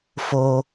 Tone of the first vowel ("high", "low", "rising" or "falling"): high